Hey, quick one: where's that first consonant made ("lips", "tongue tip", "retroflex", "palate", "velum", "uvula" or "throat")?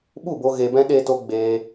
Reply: lips